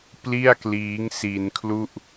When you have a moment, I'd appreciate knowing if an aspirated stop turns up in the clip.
yes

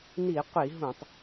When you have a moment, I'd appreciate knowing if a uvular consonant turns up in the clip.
yes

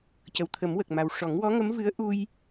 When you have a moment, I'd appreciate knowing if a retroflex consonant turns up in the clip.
yes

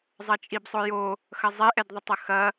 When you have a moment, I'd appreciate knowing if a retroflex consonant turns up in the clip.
no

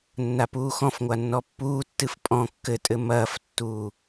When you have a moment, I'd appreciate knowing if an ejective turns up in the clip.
yes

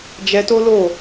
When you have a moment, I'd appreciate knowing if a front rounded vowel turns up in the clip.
no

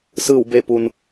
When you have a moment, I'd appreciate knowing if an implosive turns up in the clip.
no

